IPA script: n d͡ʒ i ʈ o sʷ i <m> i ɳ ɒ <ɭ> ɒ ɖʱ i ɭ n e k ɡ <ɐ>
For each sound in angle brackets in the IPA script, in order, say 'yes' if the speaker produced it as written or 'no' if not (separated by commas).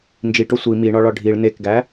yes, yes, no